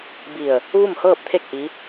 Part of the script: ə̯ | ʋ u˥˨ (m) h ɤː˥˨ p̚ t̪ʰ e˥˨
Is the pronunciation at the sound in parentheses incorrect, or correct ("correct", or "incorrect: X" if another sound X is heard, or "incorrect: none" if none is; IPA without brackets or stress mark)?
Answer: correct